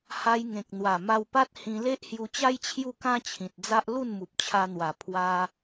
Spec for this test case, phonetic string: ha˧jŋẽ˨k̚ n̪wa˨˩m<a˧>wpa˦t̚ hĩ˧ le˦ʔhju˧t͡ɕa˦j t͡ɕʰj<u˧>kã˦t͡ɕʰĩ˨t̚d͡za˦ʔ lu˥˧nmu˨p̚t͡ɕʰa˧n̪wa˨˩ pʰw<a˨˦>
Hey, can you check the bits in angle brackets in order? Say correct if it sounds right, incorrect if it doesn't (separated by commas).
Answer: correct, incorrect, incorrect